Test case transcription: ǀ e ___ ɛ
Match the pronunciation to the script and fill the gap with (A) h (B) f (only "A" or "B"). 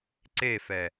B